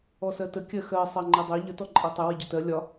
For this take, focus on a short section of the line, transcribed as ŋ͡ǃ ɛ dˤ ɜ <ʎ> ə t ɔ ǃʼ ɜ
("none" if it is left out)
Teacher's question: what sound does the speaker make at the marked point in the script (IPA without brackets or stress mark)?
ʎ